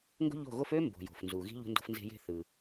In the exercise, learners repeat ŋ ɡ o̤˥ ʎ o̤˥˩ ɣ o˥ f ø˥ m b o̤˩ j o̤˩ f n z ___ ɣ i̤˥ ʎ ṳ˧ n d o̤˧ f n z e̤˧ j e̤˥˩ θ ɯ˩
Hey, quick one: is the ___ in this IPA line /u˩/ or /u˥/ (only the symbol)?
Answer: u˩